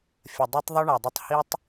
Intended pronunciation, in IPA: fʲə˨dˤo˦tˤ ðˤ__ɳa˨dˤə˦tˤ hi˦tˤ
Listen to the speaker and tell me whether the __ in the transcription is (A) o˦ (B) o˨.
A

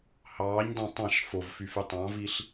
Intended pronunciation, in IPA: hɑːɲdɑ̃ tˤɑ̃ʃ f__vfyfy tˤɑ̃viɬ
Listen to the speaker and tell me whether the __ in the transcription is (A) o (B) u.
A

